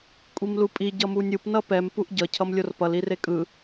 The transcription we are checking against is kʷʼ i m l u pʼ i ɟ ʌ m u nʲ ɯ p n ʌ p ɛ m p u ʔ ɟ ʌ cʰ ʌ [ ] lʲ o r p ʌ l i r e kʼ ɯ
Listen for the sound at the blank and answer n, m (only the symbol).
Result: m